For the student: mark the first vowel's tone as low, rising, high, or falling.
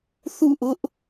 falling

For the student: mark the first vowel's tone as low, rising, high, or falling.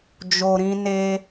low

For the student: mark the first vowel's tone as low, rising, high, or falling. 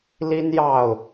high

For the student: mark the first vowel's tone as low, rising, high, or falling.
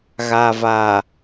low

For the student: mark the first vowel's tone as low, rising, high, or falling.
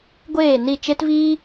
falling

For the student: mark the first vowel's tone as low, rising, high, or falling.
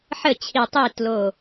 falling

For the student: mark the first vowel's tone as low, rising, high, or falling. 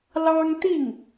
high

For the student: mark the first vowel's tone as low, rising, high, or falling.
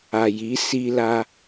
low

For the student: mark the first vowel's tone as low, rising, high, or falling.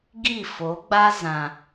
falling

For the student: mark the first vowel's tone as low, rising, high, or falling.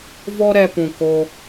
high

